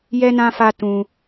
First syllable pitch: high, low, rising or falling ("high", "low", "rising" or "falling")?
high